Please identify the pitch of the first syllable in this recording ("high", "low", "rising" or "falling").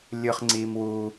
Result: high